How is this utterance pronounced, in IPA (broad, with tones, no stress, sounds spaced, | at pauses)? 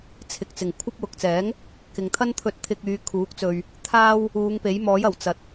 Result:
t͡sʰ ɪ˨ k̚ t͡s ɪ˨˩ ŋ kʷʰ ɐ˥ p̚ w ʊ˨ k̚ t͡s ɛː˨˥ ŋ | k ɪ˨ ŋ t̪ʰ ɐ˥ n t̪ʰ ɵ˧ t̚ t̪ʰ ɪ˧ k̚ yː˨˧ kʰ uː˨˥ k̚ t͡s ɵ˧ ɥ | t̪ʰ aː˥ w | uː˨˧ ŋ p e˨˥ j m ɔː˨˥ j ɐ˨˩ w t͡s ɐ˨˥ t̚